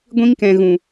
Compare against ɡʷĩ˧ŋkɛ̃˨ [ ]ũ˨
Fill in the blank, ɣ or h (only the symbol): ɣ